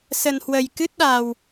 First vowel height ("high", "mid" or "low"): mid